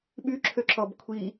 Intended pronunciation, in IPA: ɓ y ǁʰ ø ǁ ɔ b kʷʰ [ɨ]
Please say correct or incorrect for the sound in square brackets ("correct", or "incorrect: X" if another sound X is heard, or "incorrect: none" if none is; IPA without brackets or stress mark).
incorrect: i